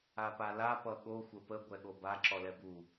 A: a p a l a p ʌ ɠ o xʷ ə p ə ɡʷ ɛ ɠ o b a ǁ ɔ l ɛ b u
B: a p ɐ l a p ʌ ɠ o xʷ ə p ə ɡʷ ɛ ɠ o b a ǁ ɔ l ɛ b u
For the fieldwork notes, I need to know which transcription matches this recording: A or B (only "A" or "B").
A